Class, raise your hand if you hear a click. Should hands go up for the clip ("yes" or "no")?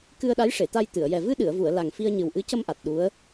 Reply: no